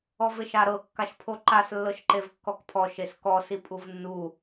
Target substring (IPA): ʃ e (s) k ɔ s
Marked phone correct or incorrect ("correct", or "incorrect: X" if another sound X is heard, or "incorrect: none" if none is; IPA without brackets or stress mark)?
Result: correct